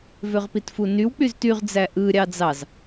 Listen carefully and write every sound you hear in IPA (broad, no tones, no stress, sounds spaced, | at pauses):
v ø ʁ p i t f u n y w k͡p y z t y ʁ d͡z æ ʔ ɯ ɾʲ ɑ d͡z ɑ z